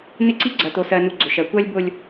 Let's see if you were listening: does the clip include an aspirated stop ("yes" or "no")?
no